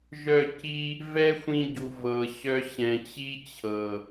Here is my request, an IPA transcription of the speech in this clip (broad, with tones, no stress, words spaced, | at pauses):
ʒœ˦˨ci˦ | vɛ˦xʷĩ˧ɟu˨ vɤ˨ɕœ˧ ɕɛ̃˨t͡ɕi˦t͡ɕʰɤ˨